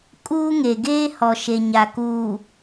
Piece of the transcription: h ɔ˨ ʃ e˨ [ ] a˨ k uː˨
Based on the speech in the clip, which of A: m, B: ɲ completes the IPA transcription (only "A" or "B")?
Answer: B